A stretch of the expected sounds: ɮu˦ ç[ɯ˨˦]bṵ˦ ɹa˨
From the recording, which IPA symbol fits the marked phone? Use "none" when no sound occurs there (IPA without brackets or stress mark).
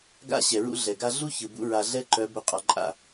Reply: ɯ˨